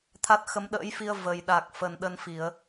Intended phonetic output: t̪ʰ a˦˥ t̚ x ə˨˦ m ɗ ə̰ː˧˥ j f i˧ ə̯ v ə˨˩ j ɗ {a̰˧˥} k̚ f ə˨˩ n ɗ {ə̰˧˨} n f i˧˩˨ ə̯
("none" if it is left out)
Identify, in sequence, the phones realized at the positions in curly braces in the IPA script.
a˨˩, ə˧

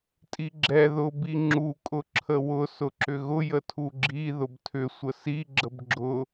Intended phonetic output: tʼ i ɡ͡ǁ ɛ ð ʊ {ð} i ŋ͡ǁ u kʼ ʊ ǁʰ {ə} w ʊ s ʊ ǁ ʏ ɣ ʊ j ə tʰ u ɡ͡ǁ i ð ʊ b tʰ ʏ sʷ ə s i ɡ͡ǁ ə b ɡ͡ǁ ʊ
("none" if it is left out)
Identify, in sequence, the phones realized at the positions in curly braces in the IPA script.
b, ə

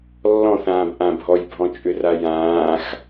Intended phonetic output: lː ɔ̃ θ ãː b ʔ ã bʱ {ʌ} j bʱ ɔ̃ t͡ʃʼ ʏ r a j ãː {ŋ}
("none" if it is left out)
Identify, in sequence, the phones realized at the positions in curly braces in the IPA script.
ɔ, x

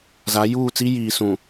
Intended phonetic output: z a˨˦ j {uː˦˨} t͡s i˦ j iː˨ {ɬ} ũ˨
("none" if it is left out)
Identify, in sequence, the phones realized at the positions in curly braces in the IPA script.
uː˦˨, s

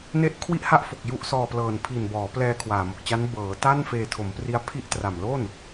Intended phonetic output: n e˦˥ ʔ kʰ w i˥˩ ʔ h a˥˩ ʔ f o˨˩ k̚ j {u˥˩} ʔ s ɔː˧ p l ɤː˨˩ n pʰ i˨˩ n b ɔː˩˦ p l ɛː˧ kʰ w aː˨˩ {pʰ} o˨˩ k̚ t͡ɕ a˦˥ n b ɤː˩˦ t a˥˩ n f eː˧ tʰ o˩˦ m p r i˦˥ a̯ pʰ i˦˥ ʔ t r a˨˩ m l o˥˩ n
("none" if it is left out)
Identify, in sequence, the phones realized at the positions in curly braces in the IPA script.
u˦˥, m

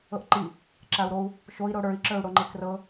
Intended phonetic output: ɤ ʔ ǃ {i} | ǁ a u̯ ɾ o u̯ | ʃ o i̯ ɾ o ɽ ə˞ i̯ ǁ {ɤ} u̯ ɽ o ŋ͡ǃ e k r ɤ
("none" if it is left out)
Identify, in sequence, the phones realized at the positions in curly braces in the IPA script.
i, ə˞

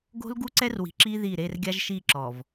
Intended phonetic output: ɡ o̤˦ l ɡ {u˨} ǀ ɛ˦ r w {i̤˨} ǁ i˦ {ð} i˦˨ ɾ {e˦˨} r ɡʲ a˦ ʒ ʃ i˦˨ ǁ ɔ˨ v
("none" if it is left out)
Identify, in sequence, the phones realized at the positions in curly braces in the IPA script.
u˦, i̤˨, ð, e˦˨

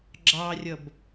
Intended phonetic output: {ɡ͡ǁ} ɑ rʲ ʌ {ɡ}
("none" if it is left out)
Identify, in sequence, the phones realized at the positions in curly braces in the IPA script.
ɡ͡ǁ, b

